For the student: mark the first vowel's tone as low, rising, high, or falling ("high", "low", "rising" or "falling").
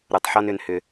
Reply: low